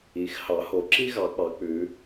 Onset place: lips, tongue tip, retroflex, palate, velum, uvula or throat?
velum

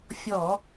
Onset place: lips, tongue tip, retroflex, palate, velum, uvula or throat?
lips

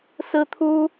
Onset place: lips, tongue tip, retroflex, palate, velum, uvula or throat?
tongue tip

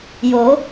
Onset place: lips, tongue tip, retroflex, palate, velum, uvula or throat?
palate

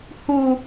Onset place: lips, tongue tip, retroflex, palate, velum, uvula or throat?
throat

